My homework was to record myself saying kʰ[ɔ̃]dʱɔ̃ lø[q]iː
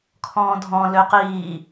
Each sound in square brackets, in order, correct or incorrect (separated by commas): incorrect, correct